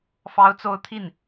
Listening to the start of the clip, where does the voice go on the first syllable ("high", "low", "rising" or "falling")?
high